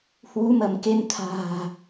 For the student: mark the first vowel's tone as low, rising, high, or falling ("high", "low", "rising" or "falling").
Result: rising